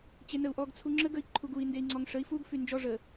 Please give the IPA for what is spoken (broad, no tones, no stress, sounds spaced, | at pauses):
t͡ɕ e n ə u̯ ʔ ɔ ɡ t͡sʰ u ŋ͡ǁ ə ɡ ə i̯ ǃʰ u ɡ u i̯ n d e i̯ ŋ͡ǀ ɔ ŋ ʂ ə i̯ f u ɡ f y n d͡ʒ ɔ ʐ ə